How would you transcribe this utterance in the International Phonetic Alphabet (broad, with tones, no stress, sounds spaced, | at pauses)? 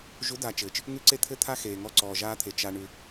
ʒ u˨˦ d a˨ t͡ʃ ɘː˨ t͡ʃ | ŋ ʉ˦ ǀ e˦ t̪ʰ ɘ˦ t̪ʰ a˦ x eː˨ ŋ ɔ˦ ǀ ɔː˨ ʒ aː˦ t̪ʰ e˨ t͡ʃ a˨ ɳ ʉ˨